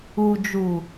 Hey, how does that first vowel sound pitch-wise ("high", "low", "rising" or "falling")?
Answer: low